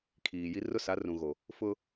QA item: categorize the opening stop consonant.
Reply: aspirated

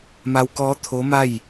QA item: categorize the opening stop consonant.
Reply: plain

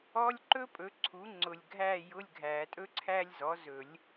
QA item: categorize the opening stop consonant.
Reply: click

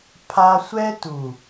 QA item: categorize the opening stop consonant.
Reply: aspirated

